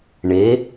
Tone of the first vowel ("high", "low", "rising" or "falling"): rising